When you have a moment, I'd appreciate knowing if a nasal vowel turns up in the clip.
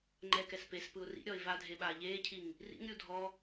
no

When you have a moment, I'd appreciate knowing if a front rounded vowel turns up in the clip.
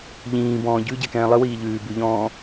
no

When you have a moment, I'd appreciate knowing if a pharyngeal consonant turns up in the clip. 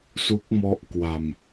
no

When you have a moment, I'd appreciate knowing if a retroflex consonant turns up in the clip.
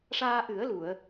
yes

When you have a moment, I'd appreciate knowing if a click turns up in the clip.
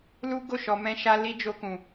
no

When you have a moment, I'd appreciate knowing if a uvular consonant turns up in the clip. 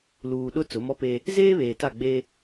no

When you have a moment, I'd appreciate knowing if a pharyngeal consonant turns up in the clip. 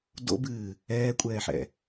yes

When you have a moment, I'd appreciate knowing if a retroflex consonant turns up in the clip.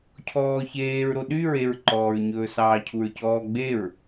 no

